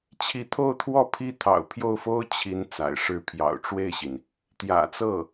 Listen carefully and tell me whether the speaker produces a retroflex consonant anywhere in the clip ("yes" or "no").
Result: yes